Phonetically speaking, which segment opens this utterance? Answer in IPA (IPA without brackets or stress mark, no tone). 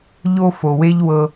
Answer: ʎ